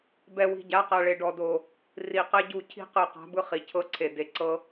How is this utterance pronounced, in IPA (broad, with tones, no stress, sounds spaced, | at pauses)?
b ɛ˨ w i̤˨ ɟ a˨˦ q a˨ ɭ e˨ ɖ ɔ˨ d o˨ | r i˨ q ɛ˦ ɟ u˦˨ cʰ i̤˦˨ q ɯ˨ q a̤˨˦ b ɯ˦ χ i˨ cʰ ɤ˦ ǀʰ e˨ d e˨ ǀ ɤ˦